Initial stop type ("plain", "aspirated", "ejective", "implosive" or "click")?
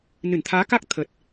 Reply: aspirated